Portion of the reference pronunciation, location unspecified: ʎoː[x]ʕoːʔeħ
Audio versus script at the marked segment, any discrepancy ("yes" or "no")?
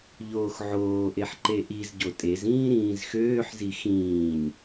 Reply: no